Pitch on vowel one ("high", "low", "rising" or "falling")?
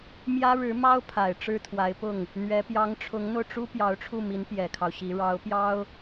high